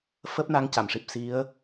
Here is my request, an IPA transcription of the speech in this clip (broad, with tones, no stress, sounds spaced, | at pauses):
f əː˦˥ p̚ n a˧˥ ŋ c a˨˩˨ m ʂ i˨˩ p̚ s i˧˥ ə̯